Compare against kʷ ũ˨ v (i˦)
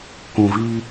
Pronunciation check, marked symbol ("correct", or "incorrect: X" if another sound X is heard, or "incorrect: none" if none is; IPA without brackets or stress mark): correct